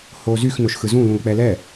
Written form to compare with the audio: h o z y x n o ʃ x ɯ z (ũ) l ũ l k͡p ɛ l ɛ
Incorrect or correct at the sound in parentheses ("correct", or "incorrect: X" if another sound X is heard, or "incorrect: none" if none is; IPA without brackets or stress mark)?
correct